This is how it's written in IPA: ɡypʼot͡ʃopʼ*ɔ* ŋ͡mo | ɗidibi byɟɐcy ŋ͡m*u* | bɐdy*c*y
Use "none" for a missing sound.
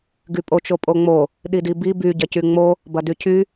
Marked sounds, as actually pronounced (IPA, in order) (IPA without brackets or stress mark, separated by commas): o, o, cʰ